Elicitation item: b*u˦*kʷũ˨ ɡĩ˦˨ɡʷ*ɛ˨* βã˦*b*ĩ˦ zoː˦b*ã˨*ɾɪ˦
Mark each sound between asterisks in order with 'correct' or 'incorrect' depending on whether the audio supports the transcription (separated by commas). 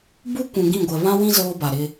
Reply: correct, correct, incorrect, incorrect